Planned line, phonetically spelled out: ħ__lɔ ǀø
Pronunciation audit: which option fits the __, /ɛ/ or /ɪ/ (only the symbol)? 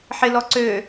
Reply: ɪ